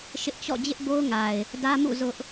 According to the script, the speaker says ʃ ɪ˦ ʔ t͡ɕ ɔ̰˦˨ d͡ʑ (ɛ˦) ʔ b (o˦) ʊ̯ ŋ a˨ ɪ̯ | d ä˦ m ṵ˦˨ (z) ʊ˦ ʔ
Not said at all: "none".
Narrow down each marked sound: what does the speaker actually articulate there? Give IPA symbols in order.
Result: ɪ˦, o˦, z

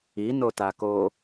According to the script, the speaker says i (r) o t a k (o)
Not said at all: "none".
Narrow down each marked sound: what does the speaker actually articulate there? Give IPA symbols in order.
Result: n, o

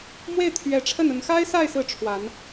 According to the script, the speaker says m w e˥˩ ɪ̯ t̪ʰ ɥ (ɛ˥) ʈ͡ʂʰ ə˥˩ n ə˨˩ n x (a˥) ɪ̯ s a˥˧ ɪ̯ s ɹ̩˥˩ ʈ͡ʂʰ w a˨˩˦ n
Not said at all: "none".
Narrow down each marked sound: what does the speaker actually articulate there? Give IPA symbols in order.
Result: ɛ˨˩, a˥

